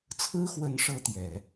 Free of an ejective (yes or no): yes